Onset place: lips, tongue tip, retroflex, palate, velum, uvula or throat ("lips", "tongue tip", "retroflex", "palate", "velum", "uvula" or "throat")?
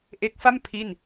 throat